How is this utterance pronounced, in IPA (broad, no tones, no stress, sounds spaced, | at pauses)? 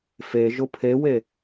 f e ʒ ʊ pʰ e w e